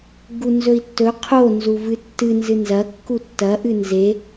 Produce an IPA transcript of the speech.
ɡ u n z ɵ i̯ tː ɵ qʰ o n z u v ɨ tː ɨ n z ɨ n z ɐ kː u tː ɐ ʔ ɨ n z e

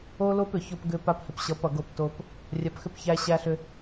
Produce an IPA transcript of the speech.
o˦ l o˦ p ʏ˨ ç o˦ p ɡ ʏ˦ p a˦ p h ɪ˨ p ɕ ʌ˨˦ p ʌ˨ ɡ o˦ p t o˦ p | rʲ a˨ p x ʏ˦ p ç æ˦ ɕ æ˦ ɬ ʏ˦

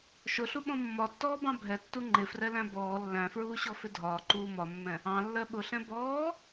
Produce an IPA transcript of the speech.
ʃ ʊ ɬ u ɓ ɔ̃ mː ɒ tː ɔː b ɑ̃ bʱ ɛ tː u ŋ͡ǃ ɪ f r ɛ l æ̃ b ɔː lː æ̃ f ɹ uː ɕ ɔ f ɪ dʱ ɒː ǃ uː m ɒ mː ɛ̃ | ɑ̃ lː ɜ ɓ ʊ ɬ ɛ̃ b ɔː

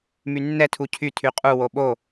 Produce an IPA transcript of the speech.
m y nː ɛ tʰ u cʰ y tʰ y qʼ u w o ɓ o

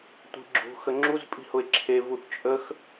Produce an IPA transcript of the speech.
tʷ i̤ ɡ͡ǁ ṳ x ə ŋ͡ǁ u z pʼ i̤ h ʊ e̯ ǁʰ e v u θ t͡ʃʼ ə x

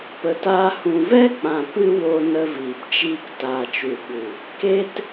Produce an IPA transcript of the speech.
p ə˨ t aː˧ h ũ˨ v ɛ˦ k͡p ã˨ p ɨ˦ w o˧ n ə˧ v iː˨ p t͡ʃ iː˧ k t aː˨ t͡ʃ u˨ ɓ u˨ | k e˧ t

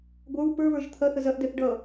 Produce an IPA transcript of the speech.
ɡʷ ə˞ w p ə˞ β ə˞ ʒ t̪ʰ ɐ θ ə z ɐ ʔ d ɛ θ ɖ ʌ

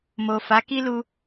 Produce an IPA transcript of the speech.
m o˨ f a˨˦ k i˦ l u˧

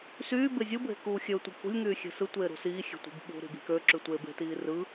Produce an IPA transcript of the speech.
s yː b e zʲ ɯ bʱ e̤ k uː xʲ ø tʷ i k ṳ lʲ ŋ yː xʲ e̤ s ɯ tʷ eː ɾ ṳ s iː xʲ e̤ tʷ i̤ b ɓ ṳ ɾ i̤ b i̤ k ø ǁ y tʷ eː b e̤ t iː r ɯ

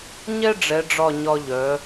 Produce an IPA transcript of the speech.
ɲ ɛ˥ ɖ͡ʐ ɛ˩˧ ɖ͡ʐ ɒ˧˩ ɲ ɒ˧ ʎ œ˩˧

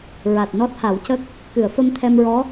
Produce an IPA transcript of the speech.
ɹ a˨˩ t̚ n ɔ˦˥ t̚ h a˨˩˦ w c ə˦˥ k̚ | k ɨ˨˩˨ ə̯ f ə˧ m t̪ʰ ɛ˧ m ɹ ɔ˧˥

